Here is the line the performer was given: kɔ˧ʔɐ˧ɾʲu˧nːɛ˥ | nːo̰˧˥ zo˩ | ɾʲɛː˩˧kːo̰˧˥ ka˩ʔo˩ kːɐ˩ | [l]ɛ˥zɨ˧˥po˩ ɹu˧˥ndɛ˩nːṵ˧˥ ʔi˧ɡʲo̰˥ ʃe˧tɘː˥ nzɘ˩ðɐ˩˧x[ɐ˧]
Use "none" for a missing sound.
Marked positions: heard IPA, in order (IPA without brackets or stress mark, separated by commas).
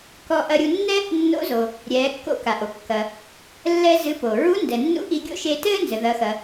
lː, ɐ˩